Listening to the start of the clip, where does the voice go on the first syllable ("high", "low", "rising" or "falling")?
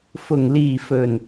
low